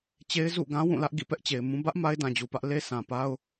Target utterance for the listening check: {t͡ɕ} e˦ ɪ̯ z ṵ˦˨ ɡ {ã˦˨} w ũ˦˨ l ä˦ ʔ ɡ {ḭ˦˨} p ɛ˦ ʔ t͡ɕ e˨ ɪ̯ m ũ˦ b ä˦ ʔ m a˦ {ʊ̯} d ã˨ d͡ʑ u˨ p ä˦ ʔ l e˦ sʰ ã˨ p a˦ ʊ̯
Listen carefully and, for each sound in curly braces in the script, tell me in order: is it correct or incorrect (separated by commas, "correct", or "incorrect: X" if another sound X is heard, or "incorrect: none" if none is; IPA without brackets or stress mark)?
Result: correct, incorrect: ã˦, correct, incorrect: ɪ̯